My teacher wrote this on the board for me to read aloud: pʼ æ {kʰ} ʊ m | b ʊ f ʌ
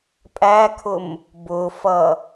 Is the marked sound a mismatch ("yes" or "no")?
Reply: no